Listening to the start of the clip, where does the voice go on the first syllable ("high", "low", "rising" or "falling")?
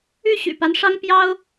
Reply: falling